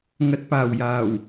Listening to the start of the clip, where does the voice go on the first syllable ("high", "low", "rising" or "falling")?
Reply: low